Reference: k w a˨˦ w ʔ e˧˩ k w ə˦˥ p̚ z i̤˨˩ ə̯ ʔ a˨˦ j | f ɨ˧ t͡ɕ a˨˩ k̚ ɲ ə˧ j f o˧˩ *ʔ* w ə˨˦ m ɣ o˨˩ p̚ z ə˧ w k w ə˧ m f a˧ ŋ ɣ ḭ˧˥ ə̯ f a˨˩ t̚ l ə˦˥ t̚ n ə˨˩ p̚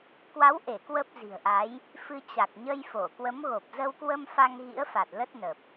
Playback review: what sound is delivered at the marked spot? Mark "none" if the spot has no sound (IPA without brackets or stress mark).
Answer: k